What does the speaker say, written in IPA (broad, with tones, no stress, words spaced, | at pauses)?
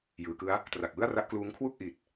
jɯː˩˦kɯ˦˥a̯ | tra˨˩k̚wɯ˥˩a̯ra˦˥ʔkluː˦˥ŋ kʰwu˥˩k̚ʔi˨˩t̚